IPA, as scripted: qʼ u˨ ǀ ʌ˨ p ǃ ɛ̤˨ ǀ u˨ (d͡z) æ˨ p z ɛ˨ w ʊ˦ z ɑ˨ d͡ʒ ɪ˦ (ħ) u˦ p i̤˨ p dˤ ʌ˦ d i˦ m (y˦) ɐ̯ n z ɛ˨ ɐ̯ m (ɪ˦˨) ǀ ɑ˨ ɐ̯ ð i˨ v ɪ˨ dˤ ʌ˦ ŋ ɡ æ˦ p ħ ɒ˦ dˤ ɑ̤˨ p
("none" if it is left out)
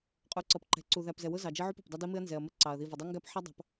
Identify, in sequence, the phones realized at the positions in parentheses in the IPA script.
ð, ʕ, ɪ˦, ɪ˦˨

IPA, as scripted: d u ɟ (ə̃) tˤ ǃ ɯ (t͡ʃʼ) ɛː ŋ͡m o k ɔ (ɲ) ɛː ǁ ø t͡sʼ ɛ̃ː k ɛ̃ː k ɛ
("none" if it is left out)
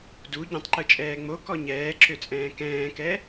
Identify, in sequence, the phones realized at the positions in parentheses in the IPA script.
ɛ̃, t͡ʃʼ, ɲ

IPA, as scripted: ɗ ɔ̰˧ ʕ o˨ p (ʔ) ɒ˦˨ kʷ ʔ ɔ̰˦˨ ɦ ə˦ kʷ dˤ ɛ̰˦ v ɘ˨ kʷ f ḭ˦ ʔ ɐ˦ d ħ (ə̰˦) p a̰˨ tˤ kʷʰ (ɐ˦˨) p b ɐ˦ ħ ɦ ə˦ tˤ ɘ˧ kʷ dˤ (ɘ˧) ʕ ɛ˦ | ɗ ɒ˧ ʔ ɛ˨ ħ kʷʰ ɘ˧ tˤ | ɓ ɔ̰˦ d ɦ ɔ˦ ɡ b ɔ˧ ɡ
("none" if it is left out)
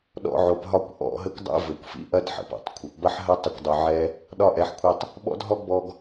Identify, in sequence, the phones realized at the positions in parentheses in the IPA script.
ɦ, ə̰˨, ɐ˨, ɘ˧

